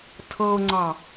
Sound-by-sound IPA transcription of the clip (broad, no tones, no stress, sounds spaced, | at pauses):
tʰ ɤ ʊ̯ ŋ͡ǀ ɑ